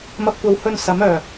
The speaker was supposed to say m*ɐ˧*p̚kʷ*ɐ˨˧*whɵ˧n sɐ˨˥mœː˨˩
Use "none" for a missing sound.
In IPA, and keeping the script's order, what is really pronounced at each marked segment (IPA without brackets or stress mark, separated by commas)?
ɐ˧, ɐ˨˧